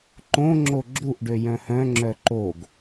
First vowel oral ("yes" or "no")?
no